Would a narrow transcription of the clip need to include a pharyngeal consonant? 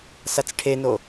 no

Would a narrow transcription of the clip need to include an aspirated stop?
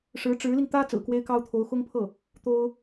yes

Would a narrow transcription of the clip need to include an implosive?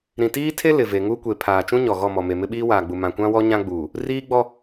yes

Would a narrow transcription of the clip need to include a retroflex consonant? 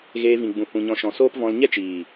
no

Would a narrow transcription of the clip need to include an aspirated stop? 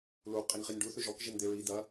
no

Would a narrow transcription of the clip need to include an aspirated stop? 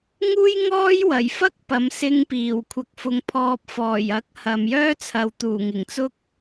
yes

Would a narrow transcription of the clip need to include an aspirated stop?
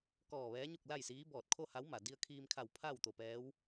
yes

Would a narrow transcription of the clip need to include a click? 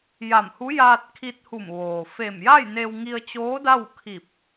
no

